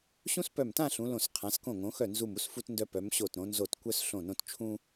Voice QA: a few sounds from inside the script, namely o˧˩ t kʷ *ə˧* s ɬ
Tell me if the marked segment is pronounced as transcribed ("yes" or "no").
no